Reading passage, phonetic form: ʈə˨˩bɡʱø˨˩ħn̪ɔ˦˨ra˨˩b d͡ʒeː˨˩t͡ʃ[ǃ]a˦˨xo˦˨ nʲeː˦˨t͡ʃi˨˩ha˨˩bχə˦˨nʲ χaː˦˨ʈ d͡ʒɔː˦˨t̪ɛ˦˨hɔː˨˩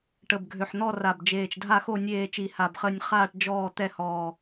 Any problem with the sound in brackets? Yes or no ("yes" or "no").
yes